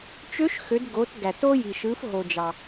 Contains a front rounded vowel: yes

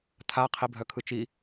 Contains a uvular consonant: yes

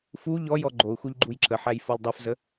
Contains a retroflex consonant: no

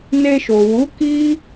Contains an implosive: no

